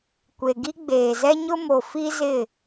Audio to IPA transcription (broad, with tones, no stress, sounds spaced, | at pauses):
kʷ e˨ ɡ i˦ ɡ͡b eː˨ z ɛ˦ ɲ ʊ˦ m o˨ f i˦ z ɪ˦˨